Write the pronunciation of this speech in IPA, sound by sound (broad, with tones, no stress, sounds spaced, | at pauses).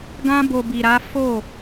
ɡ ã˧ b o˨ b i˨ ɾ a˨˦ f o˦˨